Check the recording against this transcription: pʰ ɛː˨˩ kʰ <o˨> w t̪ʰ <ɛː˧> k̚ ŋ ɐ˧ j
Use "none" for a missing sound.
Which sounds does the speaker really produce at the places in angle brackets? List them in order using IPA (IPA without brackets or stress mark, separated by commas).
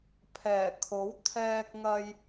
o˨˥, ɛː˧